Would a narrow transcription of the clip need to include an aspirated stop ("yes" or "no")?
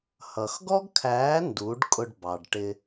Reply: yes